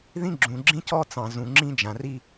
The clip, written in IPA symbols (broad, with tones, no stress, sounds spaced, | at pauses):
ð ĩ˦ ɡ͡ǁ ũ˨ ɡ͡ǁ ĩ˦ c ɔ˦ t͡s ɑ̃˨ z ũ˨ ŋ͡ǁ ĩ˦ d͡ʒ ã˨ r i˦